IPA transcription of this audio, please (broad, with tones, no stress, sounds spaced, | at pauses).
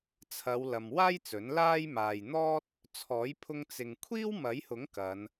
t͡sʰ ɐ˨˧ w l ɐ˧ m w aː˥ j t͡s ɵ˨˥ n l aː˥ j m aː˨ j n̪ ɔː˥ t̚ | t͡sʰ ɔː˨˥ j pʰ ʊ˧ ŋ t͡s ɪ˨ ŋ kʷʰ iː˥ w m ɐ˨˥ j h ʊ˨˥ ŋ k ɐ˨˧ n